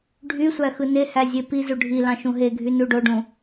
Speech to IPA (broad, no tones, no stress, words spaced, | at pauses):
ɖʱysʷæ xɯnehæ zʲepizu ɖʱilɑ̃ ʃũɦeɡʱy nuɖoɖũ